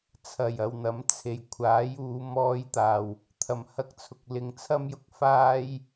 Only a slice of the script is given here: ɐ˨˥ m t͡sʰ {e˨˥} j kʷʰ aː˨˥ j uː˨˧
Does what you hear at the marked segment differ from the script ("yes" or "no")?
yes